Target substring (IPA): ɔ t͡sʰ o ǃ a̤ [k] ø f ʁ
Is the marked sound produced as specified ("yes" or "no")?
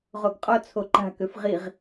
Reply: yes